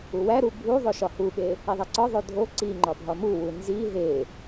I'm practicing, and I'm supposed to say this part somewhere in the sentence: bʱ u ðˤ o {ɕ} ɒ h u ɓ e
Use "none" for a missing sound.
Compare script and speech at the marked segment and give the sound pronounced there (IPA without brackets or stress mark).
ʃ